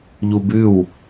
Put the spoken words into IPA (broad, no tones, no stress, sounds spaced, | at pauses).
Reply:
ʎ u b ʉ w